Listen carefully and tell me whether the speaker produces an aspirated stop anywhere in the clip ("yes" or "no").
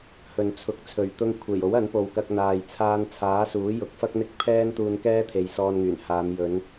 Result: yes